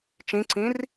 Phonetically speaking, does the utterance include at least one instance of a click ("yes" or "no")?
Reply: yes